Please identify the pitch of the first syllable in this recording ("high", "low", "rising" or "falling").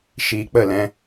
low